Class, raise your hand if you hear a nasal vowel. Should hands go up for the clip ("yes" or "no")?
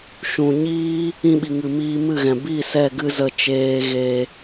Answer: yes